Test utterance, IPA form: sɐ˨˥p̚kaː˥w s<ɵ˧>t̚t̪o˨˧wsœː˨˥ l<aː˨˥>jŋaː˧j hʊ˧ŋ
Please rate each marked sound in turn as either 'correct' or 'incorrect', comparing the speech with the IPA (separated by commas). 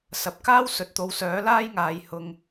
incorrect, incorrect